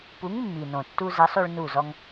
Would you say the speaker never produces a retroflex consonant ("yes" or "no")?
no